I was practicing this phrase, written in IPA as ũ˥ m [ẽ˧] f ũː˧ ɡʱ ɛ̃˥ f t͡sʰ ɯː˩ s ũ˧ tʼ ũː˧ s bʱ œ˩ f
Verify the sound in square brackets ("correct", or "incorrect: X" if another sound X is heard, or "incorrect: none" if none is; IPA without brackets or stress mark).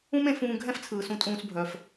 correct